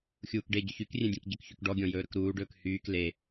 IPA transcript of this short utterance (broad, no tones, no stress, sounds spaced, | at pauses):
xʲ uː k ɖ e ɟ ʏ ç y k rʲ ẽ dʲ ẽ k ɟ ʏ k ç y k ɖ ɔ ɡʲ ɔ̃ j ɵː ɾ ɵ k ɾ uː ɖ ɵː k h yː k l e